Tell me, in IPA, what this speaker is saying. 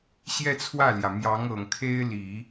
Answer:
ɕ j ɛ˥˧ t͡sʰ w ä˥˩ l j ä˩ m j ɑ˧˥ ŋ ɤ˨˩ ŋ kʰ e˥ ɪ̯ l i˨˩˦

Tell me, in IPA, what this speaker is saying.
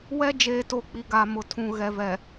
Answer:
w ɛ˦ d͡ʒ eː˨ t o˨ k͡p i˨ ɡ a˨ m ʊ˨ tʰ ũ˨ ɣ ɛ˨ v ɛ˨

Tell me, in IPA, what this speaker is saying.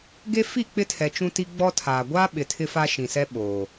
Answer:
ɡ e˦ f i˦˨ k͡p ɪ˦ tʰ ɛ˨ t͡ʃ ũ˦ t i˦ ɡ͡b ɔ˦ tʰ aː˨ ɡʷ aː˦ ɓ ɪ˨ tʰ ɪ˦ f a˦ ʃ ĩ˨ s ɛ˦ ɓ oː˨

